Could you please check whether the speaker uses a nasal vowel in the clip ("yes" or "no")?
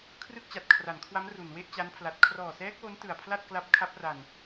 no